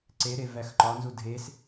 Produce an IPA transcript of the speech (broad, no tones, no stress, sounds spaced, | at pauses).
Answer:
ǀ e ɾ e v æ x ǃ ɒ n z u dʱ e s